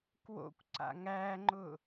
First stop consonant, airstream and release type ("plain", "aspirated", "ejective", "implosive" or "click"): plain